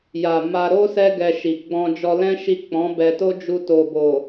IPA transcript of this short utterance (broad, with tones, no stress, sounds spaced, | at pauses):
j a˨ m a˧ ɾ o˦ s ɛ˦ ɡ ɛ˧ ʃ i˨ ɡ͡b ɔ̃˧ d͡ʒ ɔ˧ l ɛ̃˦ ʃ i˦˨ k͡p ɔ̃˨˦ b ɛ˧ t o˦ d͡ʒ u˧ t o˨ b o˨